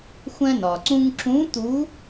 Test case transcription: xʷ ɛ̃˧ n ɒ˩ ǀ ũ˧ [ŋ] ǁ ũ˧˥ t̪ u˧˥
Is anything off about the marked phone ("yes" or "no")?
no